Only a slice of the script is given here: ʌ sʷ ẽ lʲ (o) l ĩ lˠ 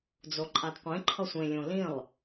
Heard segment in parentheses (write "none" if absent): õ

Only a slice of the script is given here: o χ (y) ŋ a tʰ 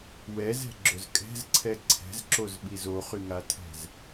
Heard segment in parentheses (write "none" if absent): y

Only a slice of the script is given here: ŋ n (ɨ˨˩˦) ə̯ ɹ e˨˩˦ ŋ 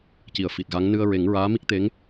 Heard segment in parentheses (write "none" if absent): ɨ˧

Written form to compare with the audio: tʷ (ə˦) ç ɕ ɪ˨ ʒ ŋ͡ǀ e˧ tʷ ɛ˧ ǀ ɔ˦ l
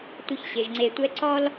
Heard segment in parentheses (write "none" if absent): ə˦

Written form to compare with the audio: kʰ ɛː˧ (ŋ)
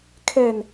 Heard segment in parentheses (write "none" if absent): n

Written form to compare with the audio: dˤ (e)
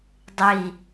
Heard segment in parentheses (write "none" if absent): i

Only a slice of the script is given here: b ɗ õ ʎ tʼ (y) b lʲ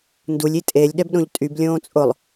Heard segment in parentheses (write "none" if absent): y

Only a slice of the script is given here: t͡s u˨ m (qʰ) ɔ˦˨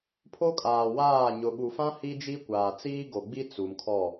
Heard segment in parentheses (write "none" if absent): kʰ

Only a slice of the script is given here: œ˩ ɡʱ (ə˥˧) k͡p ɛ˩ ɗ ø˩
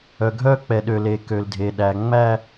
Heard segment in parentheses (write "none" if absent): œ˥˧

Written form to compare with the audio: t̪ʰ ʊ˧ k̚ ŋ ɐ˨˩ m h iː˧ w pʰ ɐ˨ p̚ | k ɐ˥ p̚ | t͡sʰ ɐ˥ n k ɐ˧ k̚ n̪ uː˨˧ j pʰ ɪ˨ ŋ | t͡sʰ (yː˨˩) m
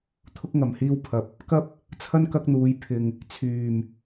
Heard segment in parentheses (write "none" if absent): yː˨˩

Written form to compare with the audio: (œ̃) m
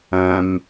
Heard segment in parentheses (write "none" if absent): œ̃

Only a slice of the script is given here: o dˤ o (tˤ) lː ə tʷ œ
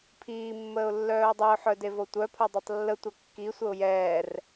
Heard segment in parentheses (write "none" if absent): tˤ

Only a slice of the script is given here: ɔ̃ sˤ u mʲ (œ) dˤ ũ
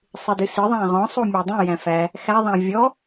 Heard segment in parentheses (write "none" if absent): æ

